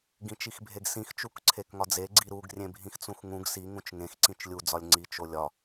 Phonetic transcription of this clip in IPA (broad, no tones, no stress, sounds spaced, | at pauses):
ɡ ĩ t͡ʃ i x bʱ e ɡ s ĩ x t͡ʃ u k ǀʰ e k ŋ ɒ d͡z e ɡ͡ǀ i ɾ u ɡ rʲ ẽ bʱ ĩ x t͡s ũ x ŋ ũ ɡ s i ŋ ũ t͡ʃ ŋ ẽ x ǀ ĩ t͡ʃ lʲ u d͡z ɒ lʲ ŋ͡ǀ i t͡ʃ o lʲ ɒ